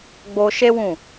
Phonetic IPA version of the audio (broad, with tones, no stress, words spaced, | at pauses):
ɡ͡bo˧ʃe˦wũ˦˨